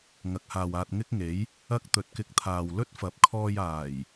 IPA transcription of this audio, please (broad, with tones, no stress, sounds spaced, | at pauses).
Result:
ŋ ɐ˨˥ k̚ h aː˨ w aː˧ t̚ ŋ ɪ˥ k̚ ŋ e˨˥ j | ɐ˥ k̚ t̪ ɵ˨ t̚ k ɪ˧ k̚ t̪ʰ aː˨ w l ɵ˥ t̚ f ɐ˨˥ p̚ kʰ ɔː˧ j aː˨˩ j